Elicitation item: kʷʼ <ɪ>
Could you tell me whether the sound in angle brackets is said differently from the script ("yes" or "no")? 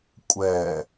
yes